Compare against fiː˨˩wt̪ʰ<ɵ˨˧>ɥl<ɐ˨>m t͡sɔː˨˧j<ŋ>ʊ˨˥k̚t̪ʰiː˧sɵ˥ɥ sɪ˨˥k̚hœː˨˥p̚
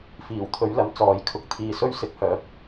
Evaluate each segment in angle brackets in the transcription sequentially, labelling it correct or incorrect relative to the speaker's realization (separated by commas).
correct, correct, incorrect